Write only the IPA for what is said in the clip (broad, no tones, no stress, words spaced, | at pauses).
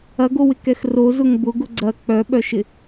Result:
ɐɡowɪkɛx rozʊŋ bʊɡʊ ɡ͡ǀɐ k͡pœɓœʃɪ